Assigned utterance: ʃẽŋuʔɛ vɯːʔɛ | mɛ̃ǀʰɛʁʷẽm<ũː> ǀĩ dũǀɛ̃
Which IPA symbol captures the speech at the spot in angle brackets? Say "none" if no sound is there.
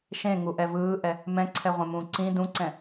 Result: ũː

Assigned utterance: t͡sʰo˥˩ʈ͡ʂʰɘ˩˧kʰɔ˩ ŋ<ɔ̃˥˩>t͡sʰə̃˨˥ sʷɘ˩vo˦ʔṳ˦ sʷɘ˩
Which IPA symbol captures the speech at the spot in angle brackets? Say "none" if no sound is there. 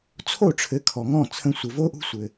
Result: ɔ̃˥˩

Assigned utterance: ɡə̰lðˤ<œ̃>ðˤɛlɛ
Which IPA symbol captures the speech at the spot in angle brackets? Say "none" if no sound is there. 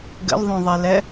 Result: œ̃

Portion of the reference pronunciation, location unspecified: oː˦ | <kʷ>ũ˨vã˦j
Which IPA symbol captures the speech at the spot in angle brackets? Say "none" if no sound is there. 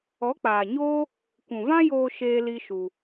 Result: kʷ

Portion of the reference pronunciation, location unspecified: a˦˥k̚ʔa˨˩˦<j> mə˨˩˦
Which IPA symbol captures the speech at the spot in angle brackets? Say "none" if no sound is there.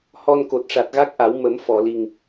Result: w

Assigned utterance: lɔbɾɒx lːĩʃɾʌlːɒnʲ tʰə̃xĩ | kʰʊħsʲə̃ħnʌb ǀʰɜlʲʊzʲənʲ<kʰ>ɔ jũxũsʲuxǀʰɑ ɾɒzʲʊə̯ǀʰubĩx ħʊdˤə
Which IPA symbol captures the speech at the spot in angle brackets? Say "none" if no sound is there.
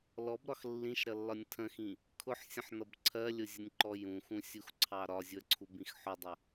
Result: ǃ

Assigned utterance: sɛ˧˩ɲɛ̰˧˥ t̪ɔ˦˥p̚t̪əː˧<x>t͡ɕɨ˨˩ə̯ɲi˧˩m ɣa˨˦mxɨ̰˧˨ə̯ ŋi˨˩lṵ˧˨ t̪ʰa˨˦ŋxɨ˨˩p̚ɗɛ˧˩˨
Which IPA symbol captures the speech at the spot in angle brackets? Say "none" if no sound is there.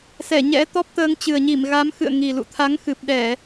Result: ŋ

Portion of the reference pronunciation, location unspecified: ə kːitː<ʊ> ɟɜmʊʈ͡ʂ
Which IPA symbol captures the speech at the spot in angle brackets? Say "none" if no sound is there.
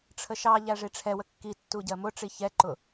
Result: u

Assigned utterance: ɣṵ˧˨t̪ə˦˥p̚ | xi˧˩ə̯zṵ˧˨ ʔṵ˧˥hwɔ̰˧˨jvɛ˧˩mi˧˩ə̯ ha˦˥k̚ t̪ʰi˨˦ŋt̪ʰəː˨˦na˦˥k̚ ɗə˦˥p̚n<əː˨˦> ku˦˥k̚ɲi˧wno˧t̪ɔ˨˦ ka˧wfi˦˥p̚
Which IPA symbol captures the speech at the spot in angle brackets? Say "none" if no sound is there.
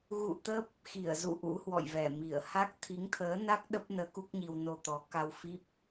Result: əː˨˦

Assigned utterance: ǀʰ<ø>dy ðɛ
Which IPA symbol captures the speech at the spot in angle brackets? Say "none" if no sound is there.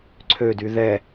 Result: ø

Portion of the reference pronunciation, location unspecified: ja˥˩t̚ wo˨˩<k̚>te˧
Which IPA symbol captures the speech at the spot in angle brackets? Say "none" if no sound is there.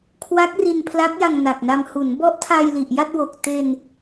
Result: k̚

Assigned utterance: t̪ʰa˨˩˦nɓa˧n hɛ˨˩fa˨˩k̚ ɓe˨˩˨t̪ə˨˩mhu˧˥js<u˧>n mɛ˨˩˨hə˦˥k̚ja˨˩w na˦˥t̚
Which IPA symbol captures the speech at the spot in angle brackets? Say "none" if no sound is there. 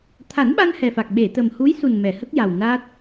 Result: u˨˩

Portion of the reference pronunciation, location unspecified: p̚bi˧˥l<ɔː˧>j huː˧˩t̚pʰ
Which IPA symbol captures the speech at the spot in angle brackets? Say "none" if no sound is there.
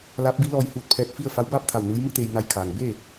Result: ɔː˧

